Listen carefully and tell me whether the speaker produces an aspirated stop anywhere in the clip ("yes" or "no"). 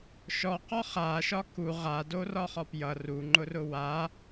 no